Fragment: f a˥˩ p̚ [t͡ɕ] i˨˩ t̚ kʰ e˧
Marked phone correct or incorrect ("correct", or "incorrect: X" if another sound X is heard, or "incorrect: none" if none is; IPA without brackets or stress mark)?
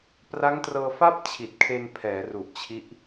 incorrect: t͡ɕʰ